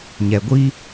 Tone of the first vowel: low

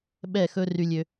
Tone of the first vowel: falling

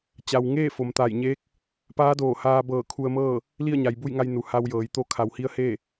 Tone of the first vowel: low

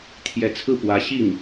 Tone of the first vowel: rising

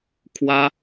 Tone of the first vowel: high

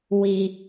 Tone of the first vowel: low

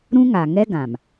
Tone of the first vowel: high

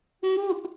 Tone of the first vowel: falling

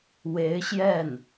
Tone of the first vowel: rising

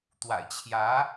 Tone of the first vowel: low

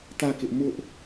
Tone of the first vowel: falling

